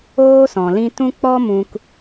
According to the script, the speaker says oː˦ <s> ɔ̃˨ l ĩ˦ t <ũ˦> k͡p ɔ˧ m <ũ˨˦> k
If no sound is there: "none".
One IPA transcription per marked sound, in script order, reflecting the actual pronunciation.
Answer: s, ũ˦, ũ˧

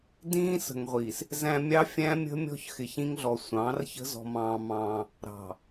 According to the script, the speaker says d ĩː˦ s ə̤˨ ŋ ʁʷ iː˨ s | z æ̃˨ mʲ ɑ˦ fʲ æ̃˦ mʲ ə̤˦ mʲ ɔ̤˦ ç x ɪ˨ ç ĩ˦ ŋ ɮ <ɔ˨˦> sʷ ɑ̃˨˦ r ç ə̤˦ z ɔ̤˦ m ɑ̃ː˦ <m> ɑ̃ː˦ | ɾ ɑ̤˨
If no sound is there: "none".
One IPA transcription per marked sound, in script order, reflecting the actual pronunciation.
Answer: ɔ˨, m

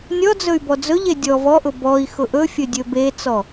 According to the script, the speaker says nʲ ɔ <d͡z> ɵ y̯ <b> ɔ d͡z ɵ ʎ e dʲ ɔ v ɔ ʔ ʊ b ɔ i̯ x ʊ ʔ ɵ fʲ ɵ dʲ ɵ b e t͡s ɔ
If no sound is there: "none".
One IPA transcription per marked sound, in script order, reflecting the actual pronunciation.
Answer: d͡z, b

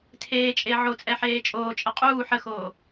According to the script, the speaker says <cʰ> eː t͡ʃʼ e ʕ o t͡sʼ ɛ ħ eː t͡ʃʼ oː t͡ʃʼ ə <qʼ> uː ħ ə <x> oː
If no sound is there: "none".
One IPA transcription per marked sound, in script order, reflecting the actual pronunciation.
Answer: tʰ, qʼ, x

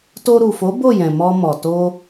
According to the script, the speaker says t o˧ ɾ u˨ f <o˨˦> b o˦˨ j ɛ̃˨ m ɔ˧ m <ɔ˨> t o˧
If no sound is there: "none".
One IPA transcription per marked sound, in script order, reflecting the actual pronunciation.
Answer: o˨˦, ɔ˨

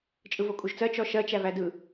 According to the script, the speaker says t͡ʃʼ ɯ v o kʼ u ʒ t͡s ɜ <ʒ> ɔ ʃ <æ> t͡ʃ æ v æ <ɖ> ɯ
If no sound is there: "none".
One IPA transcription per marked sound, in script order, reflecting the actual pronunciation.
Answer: t͡ʃ, ɜ, d

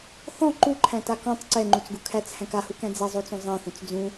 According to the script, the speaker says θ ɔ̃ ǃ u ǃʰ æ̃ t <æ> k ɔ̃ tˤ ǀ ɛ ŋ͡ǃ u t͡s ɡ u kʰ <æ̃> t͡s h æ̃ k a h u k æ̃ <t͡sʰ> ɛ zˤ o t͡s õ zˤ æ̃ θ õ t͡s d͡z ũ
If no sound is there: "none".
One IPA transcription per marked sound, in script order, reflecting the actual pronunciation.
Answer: a, æ, d͡z

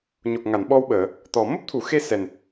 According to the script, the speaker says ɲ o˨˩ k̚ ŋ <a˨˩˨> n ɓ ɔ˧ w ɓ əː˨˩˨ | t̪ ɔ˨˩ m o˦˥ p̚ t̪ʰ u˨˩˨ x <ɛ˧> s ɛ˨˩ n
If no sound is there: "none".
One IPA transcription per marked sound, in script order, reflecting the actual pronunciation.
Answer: a˨˩˨, e˧

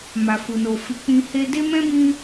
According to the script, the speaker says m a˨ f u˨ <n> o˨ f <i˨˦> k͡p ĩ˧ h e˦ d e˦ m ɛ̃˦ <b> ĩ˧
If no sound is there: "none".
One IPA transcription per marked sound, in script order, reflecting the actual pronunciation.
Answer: n, i˨˦, b

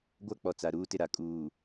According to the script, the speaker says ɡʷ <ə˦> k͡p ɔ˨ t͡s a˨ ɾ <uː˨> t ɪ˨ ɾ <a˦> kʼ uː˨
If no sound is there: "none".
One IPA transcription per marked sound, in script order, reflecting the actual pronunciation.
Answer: a˦, uː˦, a˨

